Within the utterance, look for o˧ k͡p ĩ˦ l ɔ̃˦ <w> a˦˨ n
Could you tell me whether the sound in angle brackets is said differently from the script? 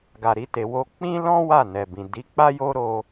no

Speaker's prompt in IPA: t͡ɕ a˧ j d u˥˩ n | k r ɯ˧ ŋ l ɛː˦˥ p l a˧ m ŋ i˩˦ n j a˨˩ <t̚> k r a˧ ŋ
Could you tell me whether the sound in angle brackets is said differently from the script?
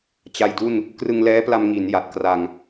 no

